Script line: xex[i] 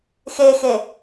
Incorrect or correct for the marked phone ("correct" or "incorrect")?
incorrect